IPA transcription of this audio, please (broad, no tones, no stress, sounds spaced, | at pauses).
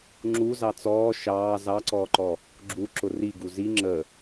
ŋ͡ǁ u z ɑ t͡s ɔː ʃ ɑː z ɑ ǀ ɔː ǃ ɔ | ɡ͡ǁ u ǁ ʊ r i ɡ u z i ŋ͡ǁ ə